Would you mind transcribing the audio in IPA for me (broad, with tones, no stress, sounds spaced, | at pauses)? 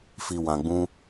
f i˧ w ã˧ ɡ͡b ũ˦